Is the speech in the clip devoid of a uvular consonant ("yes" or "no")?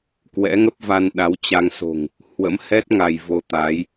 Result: yes